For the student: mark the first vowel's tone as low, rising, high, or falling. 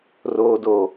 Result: low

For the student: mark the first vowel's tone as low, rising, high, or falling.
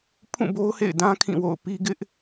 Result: falling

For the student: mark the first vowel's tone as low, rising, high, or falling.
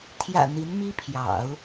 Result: low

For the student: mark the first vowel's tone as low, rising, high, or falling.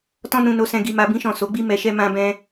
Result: high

